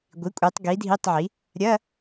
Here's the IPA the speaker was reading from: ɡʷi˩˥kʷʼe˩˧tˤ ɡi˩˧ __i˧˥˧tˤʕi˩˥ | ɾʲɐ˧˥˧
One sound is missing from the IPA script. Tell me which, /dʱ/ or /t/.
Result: dʱ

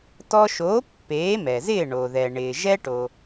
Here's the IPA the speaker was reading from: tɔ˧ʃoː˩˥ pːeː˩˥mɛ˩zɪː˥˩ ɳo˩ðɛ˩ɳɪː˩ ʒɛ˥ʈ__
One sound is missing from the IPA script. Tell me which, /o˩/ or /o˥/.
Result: o˩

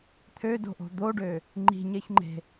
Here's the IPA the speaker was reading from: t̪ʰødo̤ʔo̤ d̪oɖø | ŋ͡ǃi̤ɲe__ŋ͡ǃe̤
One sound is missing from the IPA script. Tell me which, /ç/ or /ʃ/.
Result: ç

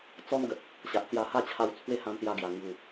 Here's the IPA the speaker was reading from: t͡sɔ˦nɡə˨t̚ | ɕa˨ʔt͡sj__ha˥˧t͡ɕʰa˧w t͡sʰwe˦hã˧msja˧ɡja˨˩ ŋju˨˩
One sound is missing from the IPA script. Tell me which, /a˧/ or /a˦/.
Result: a˧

